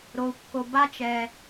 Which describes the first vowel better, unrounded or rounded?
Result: rounded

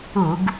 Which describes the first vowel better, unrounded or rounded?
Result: rounded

